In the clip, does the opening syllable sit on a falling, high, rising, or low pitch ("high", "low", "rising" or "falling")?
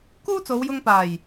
high